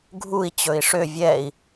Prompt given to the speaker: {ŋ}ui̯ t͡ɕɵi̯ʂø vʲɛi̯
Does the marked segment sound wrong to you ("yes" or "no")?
yes